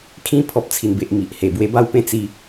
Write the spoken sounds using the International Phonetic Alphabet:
kʰ ĩ˧ pʰ ɔ˨ p̚ t͡sʰ i˨˩ n b e˨ ʔ m i˨ ʔ h e˨˩ b w e˧ b a˥˧ w p ẽ˦ t͡s i˦

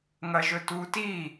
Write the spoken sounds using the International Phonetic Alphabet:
ŋ ɐ ʒ ɵ t u t i

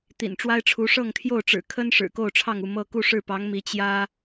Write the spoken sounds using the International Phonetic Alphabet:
t̪ ḭ˨˩ n ʈ͡ʂ w a˥ ɪ̯ ʈ͡ʂʰ u˧˥ ʂ ɤ˥˧ ŋ t̪ʰ j o˥˩ ʊ̯ ʈ͡ʂ ɻ̩˨˩ kʰ ə˥ n ʂ ɻ̩˨˩ k o˥˧ ʊ̯ ʈ͡ʂʰ ɑ˥˧ ŋ u˥˧ m ɤ˥˧ k u˥˧ ʂ ɻ̩˥˩ p ɑ˧˥ ŋ m i˧˥ t͡ɕ j ä˥

